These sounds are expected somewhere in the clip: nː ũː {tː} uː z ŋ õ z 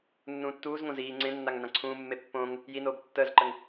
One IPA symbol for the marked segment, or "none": tː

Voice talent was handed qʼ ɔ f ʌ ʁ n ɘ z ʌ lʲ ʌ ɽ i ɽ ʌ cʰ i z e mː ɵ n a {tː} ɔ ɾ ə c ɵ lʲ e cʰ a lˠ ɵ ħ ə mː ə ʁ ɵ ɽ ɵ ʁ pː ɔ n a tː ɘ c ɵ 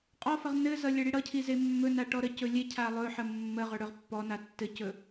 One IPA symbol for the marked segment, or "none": ʈ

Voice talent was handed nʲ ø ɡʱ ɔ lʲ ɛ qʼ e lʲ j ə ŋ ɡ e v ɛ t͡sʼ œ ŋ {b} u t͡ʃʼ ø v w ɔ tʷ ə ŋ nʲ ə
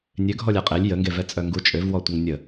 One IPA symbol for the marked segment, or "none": ɡ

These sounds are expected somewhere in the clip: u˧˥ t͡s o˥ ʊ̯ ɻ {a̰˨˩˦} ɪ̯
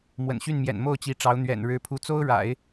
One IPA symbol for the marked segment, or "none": a̰˨˩˦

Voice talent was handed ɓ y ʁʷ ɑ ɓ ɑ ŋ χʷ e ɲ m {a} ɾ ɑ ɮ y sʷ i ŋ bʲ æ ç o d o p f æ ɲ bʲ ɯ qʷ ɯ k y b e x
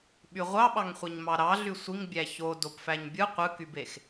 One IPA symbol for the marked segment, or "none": ɑ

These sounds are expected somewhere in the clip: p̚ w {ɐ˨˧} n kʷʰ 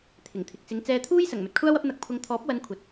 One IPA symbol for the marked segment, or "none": ɐ˨˧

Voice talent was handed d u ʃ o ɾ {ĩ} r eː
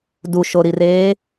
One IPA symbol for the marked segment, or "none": i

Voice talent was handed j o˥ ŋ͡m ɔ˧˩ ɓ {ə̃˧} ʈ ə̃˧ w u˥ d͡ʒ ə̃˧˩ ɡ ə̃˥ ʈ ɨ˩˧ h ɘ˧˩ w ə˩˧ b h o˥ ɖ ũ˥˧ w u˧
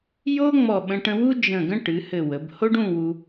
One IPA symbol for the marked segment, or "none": ə̃˧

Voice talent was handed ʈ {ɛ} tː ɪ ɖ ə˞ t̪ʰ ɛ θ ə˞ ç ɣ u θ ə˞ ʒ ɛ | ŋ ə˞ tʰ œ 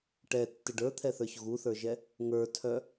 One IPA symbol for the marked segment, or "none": ɛ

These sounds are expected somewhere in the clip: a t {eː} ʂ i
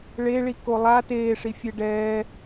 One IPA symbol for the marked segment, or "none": eː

